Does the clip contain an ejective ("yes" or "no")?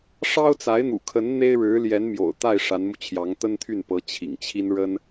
no